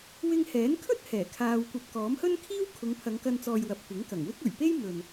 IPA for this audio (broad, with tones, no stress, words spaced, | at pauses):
wɪ˧ŋhɛː˨˥nkʰɵ˥t̚ hɛː˨˩kʰaː˧wkʷɐ˧p̚ kɔː˨˥mhɵ˥nkʰiː˥w kʰʊ˨˧ŋpʰɐ˨˧ŋkɐ˧nt͡sɔː˨j wɐ˨p̚kʷɪ˨˥ŋ kɐ˨˩ŋwɪ˥k̚ ɵ˨˩ɥpe˥jmɵ˨n